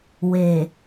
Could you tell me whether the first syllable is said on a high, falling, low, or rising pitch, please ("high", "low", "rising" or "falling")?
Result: low